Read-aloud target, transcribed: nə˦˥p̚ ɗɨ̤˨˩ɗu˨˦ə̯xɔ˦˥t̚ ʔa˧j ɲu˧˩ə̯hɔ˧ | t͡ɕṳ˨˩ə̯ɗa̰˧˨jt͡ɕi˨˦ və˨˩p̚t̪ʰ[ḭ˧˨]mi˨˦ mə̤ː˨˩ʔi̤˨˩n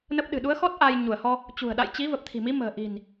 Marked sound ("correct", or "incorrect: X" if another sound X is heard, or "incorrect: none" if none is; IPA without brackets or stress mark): incorrect: i̤˨˩